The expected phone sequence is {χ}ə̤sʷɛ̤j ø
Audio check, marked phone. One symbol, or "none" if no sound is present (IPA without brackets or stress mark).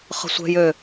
χ